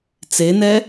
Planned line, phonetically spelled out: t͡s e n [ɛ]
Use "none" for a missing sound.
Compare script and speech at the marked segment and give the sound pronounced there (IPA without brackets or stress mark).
ɛ